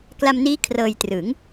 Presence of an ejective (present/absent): absent